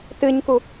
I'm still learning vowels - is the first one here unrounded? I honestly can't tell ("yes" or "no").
yes